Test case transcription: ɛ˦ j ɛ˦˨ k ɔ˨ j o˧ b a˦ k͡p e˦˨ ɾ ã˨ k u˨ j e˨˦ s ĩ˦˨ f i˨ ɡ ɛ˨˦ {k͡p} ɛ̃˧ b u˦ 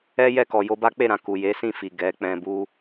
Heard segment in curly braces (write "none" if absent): k͡p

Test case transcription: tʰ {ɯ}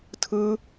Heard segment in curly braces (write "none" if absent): ɯ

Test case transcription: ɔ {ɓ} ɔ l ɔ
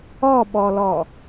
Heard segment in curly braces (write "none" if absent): ɓ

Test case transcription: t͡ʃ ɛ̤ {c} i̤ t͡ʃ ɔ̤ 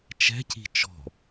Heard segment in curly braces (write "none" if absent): c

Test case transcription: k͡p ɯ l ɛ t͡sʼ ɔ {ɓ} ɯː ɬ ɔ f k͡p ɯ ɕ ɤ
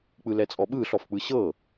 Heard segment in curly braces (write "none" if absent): ɓ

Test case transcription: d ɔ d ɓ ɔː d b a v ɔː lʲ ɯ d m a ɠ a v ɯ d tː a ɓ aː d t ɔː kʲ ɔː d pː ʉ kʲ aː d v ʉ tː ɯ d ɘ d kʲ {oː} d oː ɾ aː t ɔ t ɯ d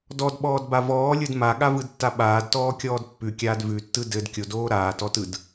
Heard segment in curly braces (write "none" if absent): o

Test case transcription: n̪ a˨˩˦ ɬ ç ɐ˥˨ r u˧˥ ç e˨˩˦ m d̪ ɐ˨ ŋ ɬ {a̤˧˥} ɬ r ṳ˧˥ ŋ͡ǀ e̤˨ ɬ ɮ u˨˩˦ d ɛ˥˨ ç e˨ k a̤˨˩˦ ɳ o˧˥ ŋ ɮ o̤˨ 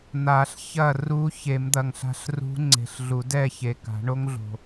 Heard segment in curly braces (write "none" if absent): a̤˧˥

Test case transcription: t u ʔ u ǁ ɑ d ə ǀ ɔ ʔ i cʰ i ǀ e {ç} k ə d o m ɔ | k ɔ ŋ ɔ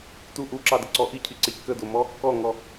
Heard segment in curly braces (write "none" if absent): ç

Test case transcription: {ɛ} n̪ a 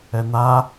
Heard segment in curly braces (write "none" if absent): ɛ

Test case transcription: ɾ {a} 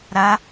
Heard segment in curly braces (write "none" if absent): a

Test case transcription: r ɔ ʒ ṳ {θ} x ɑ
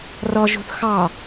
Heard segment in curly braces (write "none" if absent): θ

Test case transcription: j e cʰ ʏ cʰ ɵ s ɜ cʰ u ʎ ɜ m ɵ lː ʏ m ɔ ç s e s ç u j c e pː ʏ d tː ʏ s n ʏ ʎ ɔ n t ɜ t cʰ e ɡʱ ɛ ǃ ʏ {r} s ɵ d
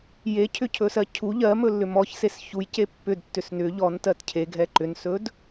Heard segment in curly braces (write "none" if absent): n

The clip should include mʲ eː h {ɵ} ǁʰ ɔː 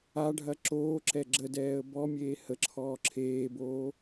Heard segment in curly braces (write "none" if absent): ə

